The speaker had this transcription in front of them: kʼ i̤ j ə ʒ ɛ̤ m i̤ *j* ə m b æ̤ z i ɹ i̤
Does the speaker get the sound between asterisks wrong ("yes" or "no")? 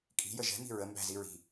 yes